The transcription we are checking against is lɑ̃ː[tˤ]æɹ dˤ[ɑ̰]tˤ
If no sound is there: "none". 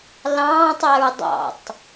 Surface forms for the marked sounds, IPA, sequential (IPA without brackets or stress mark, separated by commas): tˤ, ɑ̰